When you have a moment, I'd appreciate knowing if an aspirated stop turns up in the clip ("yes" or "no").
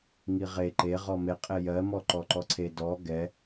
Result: yes